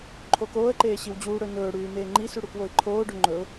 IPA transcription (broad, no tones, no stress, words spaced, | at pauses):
ǃʰokoːə̯ǃeː ɕiwd͡ʑuːɽɵ nɵːɽʉː meːŋ͡ǃisʉ ɽukwoɪ̯ǃʰoːɖɵ ŋ͡ǃɵʊ̯